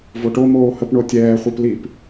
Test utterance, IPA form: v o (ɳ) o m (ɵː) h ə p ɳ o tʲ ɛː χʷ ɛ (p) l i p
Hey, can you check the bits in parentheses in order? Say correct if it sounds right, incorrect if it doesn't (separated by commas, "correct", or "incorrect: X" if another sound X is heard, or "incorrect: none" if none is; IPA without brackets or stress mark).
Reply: incorrect: ʈ, incorrect: oː, correct